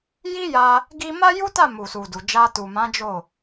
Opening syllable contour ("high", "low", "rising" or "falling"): high